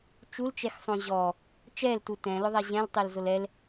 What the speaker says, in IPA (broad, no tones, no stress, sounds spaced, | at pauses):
t͡ʃ u l t͡ʃ ɛ x sˤ õ ʑ ɔ | t͡ʃ ɛ l t u t ɛ̃ l ʊ ðˤ ɛ ʑ ɛ̃ l tˤ e l z o l ɛ l